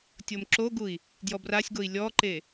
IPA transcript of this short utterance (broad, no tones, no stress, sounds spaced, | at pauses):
tʲ o m ǁ o ɡ u i̯ | d j ɔ b r a sʲ ɡ o i̯ lʲ ɔ ǃ e